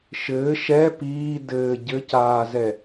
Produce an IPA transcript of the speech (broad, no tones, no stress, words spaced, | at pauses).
ʃɘː ʃɛ piː dɘː ɟɘcaːzɛ